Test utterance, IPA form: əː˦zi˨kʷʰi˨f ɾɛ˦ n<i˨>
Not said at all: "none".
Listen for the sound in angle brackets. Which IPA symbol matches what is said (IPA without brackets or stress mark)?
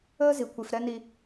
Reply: i˦